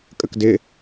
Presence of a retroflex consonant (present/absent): absent